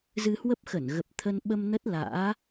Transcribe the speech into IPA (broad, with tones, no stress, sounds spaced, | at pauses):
z ɨ˧ h w ə˦˥ p̚ x ə˧˩ n ɣ ə˨˩ p̚ t̪ʰ ə˧ n ɓ ə˧ m n ə˦˥ t̚ l a̰ː˧˥